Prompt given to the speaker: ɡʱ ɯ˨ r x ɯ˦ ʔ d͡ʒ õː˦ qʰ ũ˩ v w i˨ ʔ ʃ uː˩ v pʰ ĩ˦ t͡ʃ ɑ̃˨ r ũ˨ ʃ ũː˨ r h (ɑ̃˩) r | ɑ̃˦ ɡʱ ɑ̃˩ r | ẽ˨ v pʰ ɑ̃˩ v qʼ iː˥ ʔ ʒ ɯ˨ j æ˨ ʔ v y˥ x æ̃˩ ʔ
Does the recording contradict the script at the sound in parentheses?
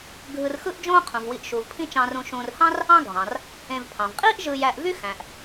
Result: yes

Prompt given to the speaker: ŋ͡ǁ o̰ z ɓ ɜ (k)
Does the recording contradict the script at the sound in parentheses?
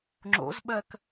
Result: no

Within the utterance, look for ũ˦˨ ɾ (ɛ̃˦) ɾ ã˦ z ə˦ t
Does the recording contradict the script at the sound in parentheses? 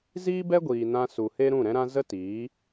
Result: no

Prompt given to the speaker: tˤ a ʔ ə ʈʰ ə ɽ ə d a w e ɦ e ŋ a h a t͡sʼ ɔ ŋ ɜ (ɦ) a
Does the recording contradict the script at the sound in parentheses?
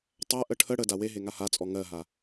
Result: no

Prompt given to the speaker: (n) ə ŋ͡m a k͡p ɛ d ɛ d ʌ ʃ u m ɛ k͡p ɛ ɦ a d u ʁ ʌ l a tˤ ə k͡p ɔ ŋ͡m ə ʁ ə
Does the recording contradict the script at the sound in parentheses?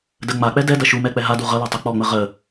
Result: yes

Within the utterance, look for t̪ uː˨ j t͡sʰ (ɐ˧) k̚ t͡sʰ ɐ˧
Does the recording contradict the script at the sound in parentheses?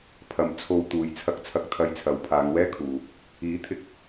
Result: no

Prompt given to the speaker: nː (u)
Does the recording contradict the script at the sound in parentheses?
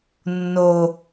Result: yes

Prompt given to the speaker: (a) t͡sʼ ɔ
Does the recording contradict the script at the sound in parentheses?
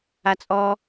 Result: no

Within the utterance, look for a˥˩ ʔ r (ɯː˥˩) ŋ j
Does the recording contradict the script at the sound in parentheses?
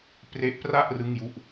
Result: yes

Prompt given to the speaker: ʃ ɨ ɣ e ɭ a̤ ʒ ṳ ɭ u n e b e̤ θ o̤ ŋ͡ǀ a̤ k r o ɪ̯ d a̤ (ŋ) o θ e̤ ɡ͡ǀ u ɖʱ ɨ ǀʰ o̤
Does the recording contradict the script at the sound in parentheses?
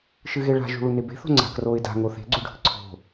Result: no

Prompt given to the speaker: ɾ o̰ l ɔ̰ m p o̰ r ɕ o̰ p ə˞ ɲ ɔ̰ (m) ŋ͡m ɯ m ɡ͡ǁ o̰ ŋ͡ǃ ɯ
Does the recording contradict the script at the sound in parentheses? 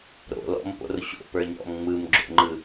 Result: no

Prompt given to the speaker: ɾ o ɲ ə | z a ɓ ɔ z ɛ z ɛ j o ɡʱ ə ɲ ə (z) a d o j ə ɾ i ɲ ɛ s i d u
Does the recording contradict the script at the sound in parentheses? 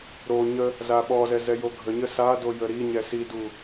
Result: yes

